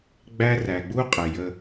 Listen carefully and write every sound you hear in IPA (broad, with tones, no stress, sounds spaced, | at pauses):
ɡ͡b æ˦ r æ˨ ɡ͡b u˦ qʼ ɪ˨ j ə˦